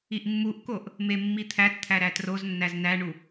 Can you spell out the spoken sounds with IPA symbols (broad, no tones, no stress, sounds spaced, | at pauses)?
i ʔ mː u ʔ k o ʔ | m e mː i t̪ʰ æ t t̪ʰ æ ɾ æ t r o z nː æ z n æ ɳ u